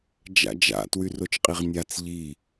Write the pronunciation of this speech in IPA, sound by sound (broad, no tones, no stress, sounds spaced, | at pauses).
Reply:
d͡ʒ a̰ d͡ʒ a̰ t w y r o t͡ʃ qʼ i ʁ nʲ a t͡s ʎ i